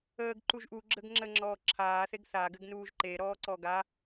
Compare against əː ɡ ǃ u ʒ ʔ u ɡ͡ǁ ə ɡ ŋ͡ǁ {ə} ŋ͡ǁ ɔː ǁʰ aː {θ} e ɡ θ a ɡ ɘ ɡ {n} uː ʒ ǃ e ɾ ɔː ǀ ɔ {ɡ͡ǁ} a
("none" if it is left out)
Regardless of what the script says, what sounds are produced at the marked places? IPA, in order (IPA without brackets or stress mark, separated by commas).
ə, θ, n, ɡ